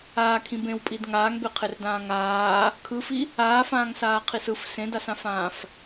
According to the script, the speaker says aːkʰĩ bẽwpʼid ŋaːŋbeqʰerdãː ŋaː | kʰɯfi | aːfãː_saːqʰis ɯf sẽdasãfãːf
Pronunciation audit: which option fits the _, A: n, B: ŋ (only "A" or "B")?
B